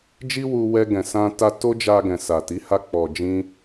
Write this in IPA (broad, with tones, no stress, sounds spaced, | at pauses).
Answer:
d͡ʒ i˦ w u˧ w ɛ˧ ɡ ɛ̃˨ s ã˧ t a˧ t o˦ d͡ʒ a˧ ɡ ɛ̃˨ s a˨ t i˨˦ h a˧ k͡p ɔ˨ d͡ʒ ĩ˧